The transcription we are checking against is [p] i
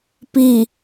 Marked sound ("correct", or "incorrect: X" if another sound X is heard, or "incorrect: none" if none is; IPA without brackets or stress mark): correct